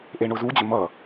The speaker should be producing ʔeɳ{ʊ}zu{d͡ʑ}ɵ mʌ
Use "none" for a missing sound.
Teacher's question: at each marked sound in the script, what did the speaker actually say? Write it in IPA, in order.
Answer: ʊ, d͡ʑ

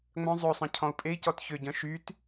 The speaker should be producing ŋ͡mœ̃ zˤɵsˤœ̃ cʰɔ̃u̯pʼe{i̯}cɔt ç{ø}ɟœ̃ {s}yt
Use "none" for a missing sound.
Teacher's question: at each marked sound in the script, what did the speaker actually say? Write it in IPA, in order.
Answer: i̯, ø, ʃ

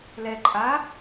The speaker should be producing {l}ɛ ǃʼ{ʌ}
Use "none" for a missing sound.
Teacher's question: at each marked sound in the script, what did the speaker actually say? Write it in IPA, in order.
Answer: l, a

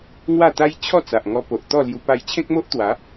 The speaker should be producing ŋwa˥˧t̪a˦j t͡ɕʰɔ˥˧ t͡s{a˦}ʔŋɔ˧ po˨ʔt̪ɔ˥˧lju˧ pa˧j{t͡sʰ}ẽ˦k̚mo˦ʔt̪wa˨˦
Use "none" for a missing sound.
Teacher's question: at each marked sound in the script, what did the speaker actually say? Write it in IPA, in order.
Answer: a˨, t͡ɕʰ

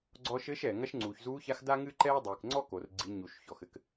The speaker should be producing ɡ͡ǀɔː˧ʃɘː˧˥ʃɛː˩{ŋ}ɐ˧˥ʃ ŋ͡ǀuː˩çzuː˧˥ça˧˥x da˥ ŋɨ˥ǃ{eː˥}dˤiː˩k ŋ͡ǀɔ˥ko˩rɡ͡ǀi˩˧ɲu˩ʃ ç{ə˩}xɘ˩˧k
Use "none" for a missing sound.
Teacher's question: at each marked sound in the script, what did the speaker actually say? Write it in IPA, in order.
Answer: ŋ, ɛː˥, ɔ˩

